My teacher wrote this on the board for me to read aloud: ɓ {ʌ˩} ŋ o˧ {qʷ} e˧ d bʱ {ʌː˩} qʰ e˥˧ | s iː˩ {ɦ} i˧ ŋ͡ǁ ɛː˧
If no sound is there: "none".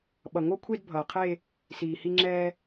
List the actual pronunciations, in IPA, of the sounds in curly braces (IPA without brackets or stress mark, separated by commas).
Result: ʌ˩, kʷʰ, ʌː˩, h